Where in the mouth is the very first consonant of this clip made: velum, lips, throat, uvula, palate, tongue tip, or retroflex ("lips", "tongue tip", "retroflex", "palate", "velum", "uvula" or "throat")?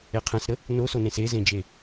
uvula